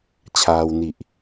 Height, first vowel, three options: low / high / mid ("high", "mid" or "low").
low